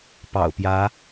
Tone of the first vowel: low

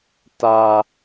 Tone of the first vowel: low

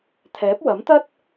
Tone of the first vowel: rising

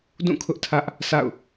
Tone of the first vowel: falling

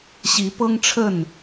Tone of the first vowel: rising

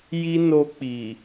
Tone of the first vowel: high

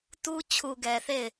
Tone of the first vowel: high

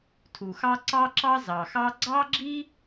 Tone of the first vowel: low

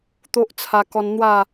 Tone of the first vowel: high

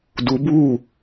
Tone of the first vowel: rising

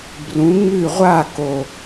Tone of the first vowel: rising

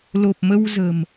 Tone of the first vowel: low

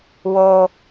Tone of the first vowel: high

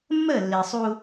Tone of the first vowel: falling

